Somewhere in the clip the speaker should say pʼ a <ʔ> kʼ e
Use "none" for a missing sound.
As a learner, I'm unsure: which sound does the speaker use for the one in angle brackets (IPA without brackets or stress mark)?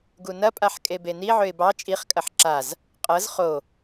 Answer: ħ